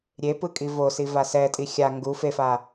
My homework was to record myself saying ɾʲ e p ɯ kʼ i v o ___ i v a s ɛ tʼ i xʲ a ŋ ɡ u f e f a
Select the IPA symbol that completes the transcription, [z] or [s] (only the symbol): s